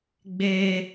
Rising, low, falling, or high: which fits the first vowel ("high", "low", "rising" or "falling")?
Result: high